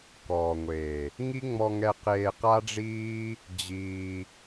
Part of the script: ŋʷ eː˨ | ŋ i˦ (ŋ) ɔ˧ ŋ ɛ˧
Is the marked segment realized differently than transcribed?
yes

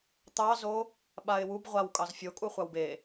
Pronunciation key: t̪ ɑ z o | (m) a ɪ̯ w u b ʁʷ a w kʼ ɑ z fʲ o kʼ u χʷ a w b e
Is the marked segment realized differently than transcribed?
yes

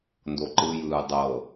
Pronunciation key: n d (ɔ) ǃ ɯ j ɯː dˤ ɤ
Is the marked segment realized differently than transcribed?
yes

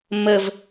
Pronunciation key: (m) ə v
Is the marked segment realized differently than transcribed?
no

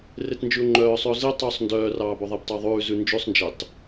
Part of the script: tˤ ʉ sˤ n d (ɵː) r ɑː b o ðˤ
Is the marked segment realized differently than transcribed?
yes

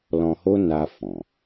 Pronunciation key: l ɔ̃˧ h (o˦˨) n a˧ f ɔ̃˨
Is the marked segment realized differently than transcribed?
yes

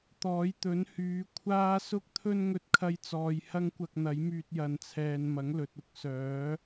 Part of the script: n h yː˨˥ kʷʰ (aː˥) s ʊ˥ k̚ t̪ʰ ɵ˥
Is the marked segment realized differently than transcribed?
no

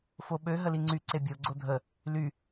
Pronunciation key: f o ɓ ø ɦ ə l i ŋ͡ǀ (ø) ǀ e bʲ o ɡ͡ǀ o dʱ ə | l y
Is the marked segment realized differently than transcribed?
yes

